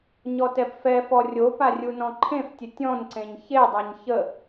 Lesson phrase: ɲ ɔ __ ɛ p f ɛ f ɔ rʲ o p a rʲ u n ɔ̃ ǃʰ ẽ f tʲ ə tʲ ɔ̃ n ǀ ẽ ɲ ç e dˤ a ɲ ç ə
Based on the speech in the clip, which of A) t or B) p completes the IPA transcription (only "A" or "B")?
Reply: A